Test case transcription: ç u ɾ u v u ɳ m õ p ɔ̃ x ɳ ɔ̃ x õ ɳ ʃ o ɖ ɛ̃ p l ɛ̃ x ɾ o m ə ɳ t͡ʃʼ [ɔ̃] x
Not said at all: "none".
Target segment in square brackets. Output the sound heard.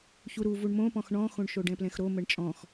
ɔ̃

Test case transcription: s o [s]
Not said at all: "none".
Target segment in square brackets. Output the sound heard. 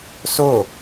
none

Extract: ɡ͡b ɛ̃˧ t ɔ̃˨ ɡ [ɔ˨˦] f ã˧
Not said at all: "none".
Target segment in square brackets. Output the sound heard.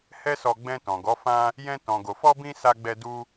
ɔ˨˦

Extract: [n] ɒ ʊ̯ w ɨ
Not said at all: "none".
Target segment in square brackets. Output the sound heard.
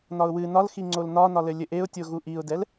n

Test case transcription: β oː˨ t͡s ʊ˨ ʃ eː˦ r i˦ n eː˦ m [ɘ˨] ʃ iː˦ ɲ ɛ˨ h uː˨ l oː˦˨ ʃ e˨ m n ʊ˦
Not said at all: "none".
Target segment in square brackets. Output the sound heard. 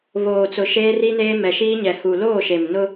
ɛ˨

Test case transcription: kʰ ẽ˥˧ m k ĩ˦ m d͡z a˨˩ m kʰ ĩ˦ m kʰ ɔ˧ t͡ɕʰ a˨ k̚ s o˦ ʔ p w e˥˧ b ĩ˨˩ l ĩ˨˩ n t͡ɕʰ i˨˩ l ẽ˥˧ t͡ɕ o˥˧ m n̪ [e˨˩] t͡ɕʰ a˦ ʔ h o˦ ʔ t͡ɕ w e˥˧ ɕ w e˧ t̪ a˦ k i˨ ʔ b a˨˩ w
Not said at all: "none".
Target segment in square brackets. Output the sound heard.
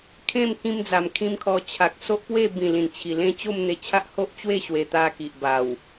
e˧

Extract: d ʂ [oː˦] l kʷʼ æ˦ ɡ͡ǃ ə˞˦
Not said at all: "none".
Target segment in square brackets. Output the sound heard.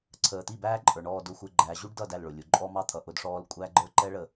ɔː˦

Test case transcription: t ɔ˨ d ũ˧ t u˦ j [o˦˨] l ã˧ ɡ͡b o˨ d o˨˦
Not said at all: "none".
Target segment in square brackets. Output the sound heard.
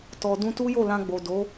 o˦˨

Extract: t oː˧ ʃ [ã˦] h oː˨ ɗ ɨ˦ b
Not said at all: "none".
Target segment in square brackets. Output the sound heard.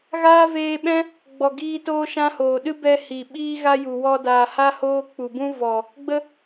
ã˦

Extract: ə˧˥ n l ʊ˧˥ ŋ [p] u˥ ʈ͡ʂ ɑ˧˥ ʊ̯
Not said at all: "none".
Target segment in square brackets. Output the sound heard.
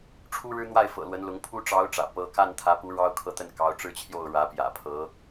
pʰ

